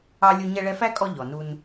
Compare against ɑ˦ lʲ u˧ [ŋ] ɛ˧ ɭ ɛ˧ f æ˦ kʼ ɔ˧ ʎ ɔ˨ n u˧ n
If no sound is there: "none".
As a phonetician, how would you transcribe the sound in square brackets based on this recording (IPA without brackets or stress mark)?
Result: ɲ